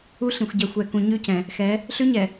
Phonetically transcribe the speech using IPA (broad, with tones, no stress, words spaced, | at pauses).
u˦ɬĩ˨xʷ ɟɛ˨xʷɛ˨kũ˨ ɲʉ˦cɛ̃˨ | xɛ˨˦ | ɬʉ˦ɲɛ˨